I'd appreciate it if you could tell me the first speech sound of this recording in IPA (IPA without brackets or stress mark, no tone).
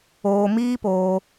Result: oː